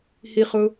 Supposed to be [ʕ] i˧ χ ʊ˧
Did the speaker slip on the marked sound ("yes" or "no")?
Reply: yes